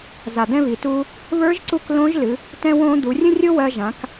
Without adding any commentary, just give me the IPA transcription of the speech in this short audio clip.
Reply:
z a˩ d̪ ɛ̃˧ β i˩ t uː˧ | β ə˞˧˥ ʒ ǀ u˧ k l õ˧˥ ʒ l ɨ˩˧ | t ɛ̃˧ w õː˧ d̪ u˩˧ rʲ ə̃˥ rʲ o˥ w ɜ˧ ʒ ã˩˧ k

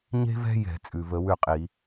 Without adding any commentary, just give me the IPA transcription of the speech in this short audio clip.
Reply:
ɲ e̤˥ v ɛ̤˥ j ɛ̤˧˩˧ t͡sʼ ʉ˩ v ə˧˩˧ w ʉ˥˨ qʼ i˧˩˧

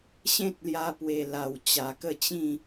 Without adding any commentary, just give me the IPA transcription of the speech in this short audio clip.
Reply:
ɕ ẽ˦ t̚ l j a˧ p w e˨˩ l a˨˩ w t͡ɕ a˨˩ k ə˥˧ t͡ɕ ĩ˥˧

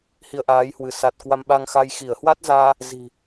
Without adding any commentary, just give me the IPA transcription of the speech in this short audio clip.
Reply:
h i˧ ə̯ ʔ aː˨˦ j h w ɨ˧˩ s a˨˩ t̚ k w a˧ m ɓ a˧ ŋ x a˧ j x i˧˩ ə̯ h w a˦˥ t̚ z aː˧ | z i̤˨˩

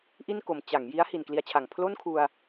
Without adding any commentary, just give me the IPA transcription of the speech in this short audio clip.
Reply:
ʔ i˥˩ n k o˩˦ m t͡ɕ a˩˦ ŋ j i˦˥ a̯ h i˨˩ n k l i˧ a̯ t͡ɕʰ a˨˩ ŋ pʰ l o˥˩ n kʰ u˧ a̯

